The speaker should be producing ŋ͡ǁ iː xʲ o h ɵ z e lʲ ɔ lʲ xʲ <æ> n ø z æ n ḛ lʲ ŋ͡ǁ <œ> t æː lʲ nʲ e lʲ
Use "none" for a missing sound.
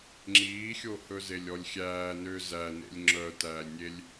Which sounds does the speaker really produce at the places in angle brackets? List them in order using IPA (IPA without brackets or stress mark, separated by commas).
æː, œ